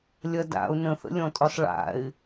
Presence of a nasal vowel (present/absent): present